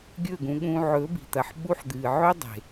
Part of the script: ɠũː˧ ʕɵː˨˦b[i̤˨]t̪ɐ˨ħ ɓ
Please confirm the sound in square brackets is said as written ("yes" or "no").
yes